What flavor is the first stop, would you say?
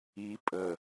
ejective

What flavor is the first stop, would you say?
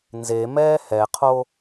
aspirated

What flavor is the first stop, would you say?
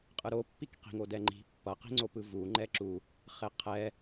ejective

